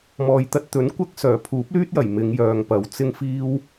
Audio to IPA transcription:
m ɔː˨ j t̪ ɐ˧ t̚ t̪ ɵ˨˥ n kʷ ɐ˥ k̚ s œː˨˩ pʰ uː˨˥ p̚ l yː˥ t̚ j ɐ˨˩ j m ɪ˨˧ ŋ j œː˨ ŋ p ɐ˨ w t͡s ɪ˧ ŋ f iː˧ w

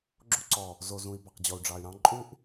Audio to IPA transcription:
ɡ͡ǁ o˦ ǀ ɔ˨ | z o˨ z ũ˨ i̯ b ɑ˨ q d͡ʑ ɔ˨ u̯ ɖ͡ʐ ɑ˨ y̯ ɾ ɑ̃˦ ǃʼ u˦ ʔ

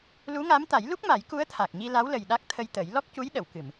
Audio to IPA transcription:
l u˧˥ ŋ a˧˥ m t̪ a˨˩˦ j l u˦˥ k̚ m a˨˩˦ j k u˧˥ ə̯ t̪ʰ a˨˩ k̚ ɲ i˧ l a˧˥ w l ə˨˩ j ɗ a˦˥ k̚ t̪ʰ ə˧ j t̪ ə˨˩˦ j l ɔ˦˥ k̚ c u˧˥ j ɗ ə˨˩˨ w k ɨ˨˩˨ m

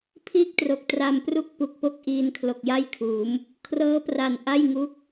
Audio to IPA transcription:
pʰ iː˥˩ k̚ t r o˨˩ k̚ t r a˧ m p r u˥˩ k̚ p u˨˩ k̚ p o˥˩ k̚ ʔ iː˧ n kʰ l o˨˩ k̚ j a˥˩ j kʰ uː˩˦ m | kʰ r ɤː˦˥ p r a˨˩ n ʔ a˥˩ j ŋ u˦˥ k̚

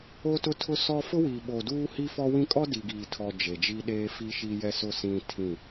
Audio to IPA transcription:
o˦ t ʊ˦ tʰ ʊ˦ s ɔ˦ f ʊ˦ w i˨ ɓ o˨ d uː˦ h i˦ f ɔ˦ w ĩ˦ kʼ ɔ˦ d i˨ ɡ iː˨ tʰ ɔ˨ d͡ʒ e˨ d͡ʒ i˦ ɗ eː˦ f i˦ ʃ i˦ j ɛ˦ s ʊ˦˨ s ĩ˦ tʰ ĩ˦˨

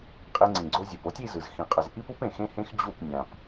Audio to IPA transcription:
qʼ e˧ ŋ͡ǀ ĩ˩ ɡ͡ǀ o˧ zʲ e˩ p o˥ tʲ i˧ z ɯ˩ z x ĩ˩ qʼ ʌ˩ z ʔ i˥ p u˥ p ẽ˩ x ẽ˥ h ẽ˥ x d͡ʑ u˥˩ p nʲ ã˩ p

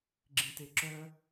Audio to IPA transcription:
ɡ͡ǁ ĩ t e ǁ œ

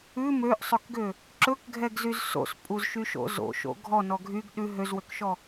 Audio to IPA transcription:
ʉ m ø ʔ sˤ ɵ k ɡ ø | ǁ ɵ k ɡʱ ɛ ɡ z y z s o̰ s pʼ u z ʃ y ʃ o̰ z o̰ ʃ o̰ ɡʱ ɔ n ɔ ɡʱ y ɡ ɗ ʉ ɦ ø z w ø k ʃ ɔ

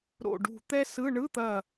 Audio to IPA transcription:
ɾ o̰˧˩ ɖ ṳ˧˩ t̪ ɛ˥ s ɯ˧˥˧ ɳ ɯ˧˥˧ t̪ ɐ˧˩

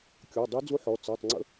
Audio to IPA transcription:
kʲ ɔ˩˧˩ dˤ i˧˥ d͡z u˧˥ ħ ɔ˩˧˩ t͡s ɜ˩˧˩ tˤ ŋ͡ǀ ə̰˧˥

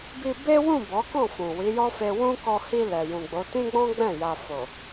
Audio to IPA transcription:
b i˧ b e˦ w ũ˦˨ b ɔ˨˦ k ɔ̃˦˨ f ũ˨ w i˨˦ j ɔ˦ f e˧ w ũ˦ k ɔ˧ h i˧ l ɛ˨ j ũ˨ ɡ͡b o˨˦ t ĩ˦ ɡ͡b ɔ̃˦ ɡ͡b ɛ̃˦˨ j a˧ f o˨

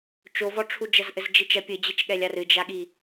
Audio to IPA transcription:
t͡ʃ o v ɔ ʈ͡ʂʰ u d͡ʒ ɐ z ʔ ɘ z d͡ʒ i t͡ʃ ɐ pʲ ɘ d͡ʑ e t͡ʃ ɠ ɛ lʲ a r ɨ d͡ʒ a ɠ i

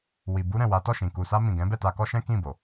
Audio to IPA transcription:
w i˨ b u˧ ɾ ɛ̃˨ w a˨˦ t ɔ˦˨ ʃ ĩ˨ k u˨ s a˧ m ĩ˨ ɡ ɛ̃˨˦ b ɛ˦˨ t a˧ k ɔ˦ ʃ ɛ̃˦ k ĩ˦˨ b o˨

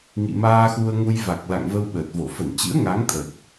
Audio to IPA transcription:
ŋ ḭ˧˨ m aː˧ x u˧ ə̯ ŋ u˧ j v a˨˩ k̚ l a̰˧˨ ŋ v ə˧ w ɓ əː˨˩ t̚ v o˧˩ f ə˧˩ n t͡ɕ ɨ̰˧˥ ə̯ ŋ a˨˦ ŋ t̪ʰ ə˨˩ t̚

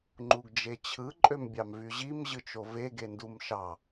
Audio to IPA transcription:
ŋ͡ǃ u ɡ d͡ʒ e t͡ɕʰ ɯ ǃʼ ø m bʲ ɑ m v y ʑ i m ʑ ɯ t͡ʃ o v e ɡ e n d u m ʃ ɑ

